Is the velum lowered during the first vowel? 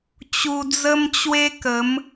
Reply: no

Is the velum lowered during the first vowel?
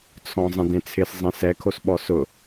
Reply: yes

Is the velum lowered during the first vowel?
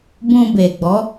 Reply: yes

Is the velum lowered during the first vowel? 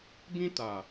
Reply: yes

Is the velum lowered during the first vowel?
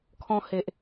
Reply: yes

